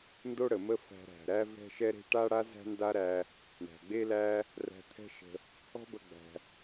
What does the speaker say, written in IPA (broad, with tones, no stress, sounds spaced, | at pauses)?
n d o˥ ɽ ə˩ m ə˥ f æ̤˧ ɾ æ̤˩ ɾ æ˥ v ɛ̤˥ ʃ ɛ˥ ɾ e̤˥ ʈ a˥ ɽ a˥ z æ̤˥ n d a˥ ɾ æ˧ | ɳ æ̤˩ ɡ͡b e˥ l æ˥ | r æ̤˧ t̪ʰ ɛ̤˥ ʃ ə̤˧ | ɔ̤˥ b ə˧ ɡ͡b æ̤˩